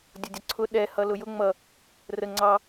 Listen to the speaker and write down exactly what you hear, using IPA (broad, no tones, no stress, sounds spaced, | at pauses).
dʲ ʊ dʲ ʌ ǀʰ ʊ ɗ ɛ h ʌ l ʊ j ʊ ŋ͡m ʌ | r ə ŋ͡ǀ ɑ